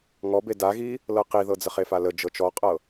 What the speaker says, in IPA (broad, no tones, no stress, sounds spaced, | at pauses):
ŋ ɔ b e d a ɣ i | l ɤ q i ð ɤ d͡z ə χ e f a l ə d͡ʒ ɤ t͡ʃ ɔ qʼ ɤ